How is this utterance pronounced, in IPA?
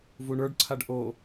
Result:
vuɳə˞ɖǀʰaɖ ʔo

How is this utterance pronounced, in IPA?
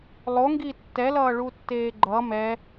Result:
lˠoŋɡi tːɛlʌːɭutːeː ɡ͡ǃʌ mɛ

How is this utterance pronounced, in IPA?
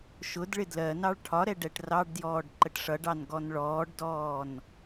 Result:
ʃʊdɭɪ dlɜnɑɭ ʈʰɒɾɛ ɖɛʈrɑɖdjɔːɖ ǃəʈʂʌɖɑn ɡɔnɭɔːɖdɔːn

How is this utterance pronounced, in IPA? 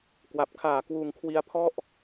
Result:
kwa˨˩p̚kʰaː˨˩ kwuː˧ŋkʰwi˦˥a̯pʰɔ˥˩ʔ

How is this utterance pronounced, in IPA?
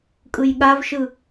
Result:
kʼɯjɠavʃɯ

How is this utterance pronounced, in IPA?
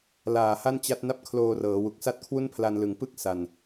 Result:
laː˨˩ ha˥˩nt͡ɕa˦˥t̚na˥˩p̚ kʰloː˧rɤː˩˦wu˨˩k̚sa˥˩t̚ kʰwu˥˩npʰla˧nlɯ˨˩ŋ pɯ˥˩k̚ sa˨˩n

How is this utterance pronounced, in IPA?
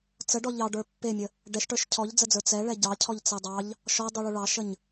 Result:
t͡səɖɔ ʎɑɖə˞ pːemʲə | ɖɛʃʈə˞ʃ cʰɔʎd͡zəd͡zə˞ t͡sɛɭɛ ɟɑcʰɔʎt͡sɛ dˤɑʎ | ʃɔdˤuɭu ɭɑʃəɲ

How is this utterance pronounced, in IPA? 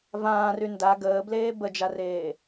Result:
vãːry nda ɡəːbleː bəd͡ʒareː

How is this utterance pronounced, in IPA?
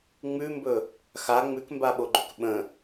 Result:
ŋ͡mʉmbɵ | xa ŋ͡mʉkmbaɓoɡ͡ǃʏk ɓə̃

